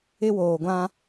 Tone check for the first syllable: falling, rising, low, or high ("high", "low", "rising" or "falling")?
high